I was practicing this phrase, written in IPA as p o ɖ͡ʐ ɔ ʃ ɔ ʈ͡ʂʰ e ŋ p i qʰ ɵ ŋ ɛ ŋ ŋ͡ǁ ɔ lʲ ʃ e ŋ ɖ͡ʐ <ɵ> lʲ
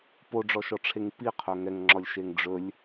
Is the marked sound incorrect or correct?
correct